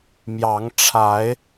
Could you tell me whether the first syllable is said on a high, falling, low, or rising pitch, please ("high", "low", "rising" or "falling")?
rising